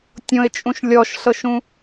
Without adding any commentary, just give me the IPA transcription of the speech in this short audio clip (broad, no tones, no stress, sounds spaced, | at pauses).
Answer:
tʲ õ ɪ̯ t͡ʃʼ ũ ʃ lʲ ɔ ʃ ɬ ɤ ʃ ũ